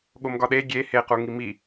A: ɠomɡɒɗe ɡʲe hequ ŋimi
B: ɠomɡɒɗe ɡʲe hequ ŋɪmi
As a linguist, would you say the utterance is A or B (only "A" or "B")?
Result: A